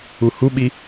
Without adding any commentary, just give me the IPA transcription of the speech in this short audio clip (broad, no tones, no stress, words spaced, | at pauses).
uhuɓi